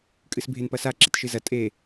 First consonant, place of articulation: velar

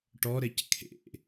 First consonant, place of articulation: retroflex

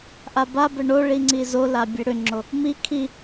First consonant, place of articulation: glottal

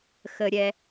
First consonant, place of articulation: velar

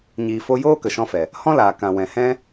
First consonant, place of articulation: palatal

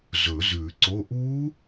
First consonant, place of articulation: alveolar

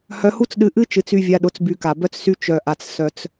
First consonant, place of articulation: glottal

